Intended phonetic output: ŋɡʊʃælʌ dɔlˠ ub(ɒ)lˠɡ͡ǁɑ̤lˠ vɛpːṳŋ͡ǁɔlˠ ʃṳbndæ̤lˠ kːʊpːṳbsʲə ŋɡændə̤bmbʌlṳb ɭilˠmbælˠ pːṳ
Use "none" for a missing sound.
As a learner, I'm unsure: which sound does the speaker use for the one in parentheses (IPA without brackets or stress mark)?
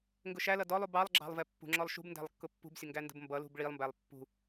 ɑ